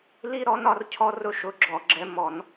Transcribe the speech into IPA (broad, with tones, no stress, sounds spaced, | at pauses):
l i˦ ɾ ɔ˨˥ n ɒ˩˧ r cʰ ɔ˦ r ʊ˦ ʃ ʊ˨˥ ɡ͡ǁ ɔ˧˩˧ ɡ͡ǁ ɛ˨˥ m ɔ˧˩˧ n